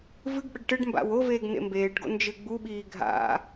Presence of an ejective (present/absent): absent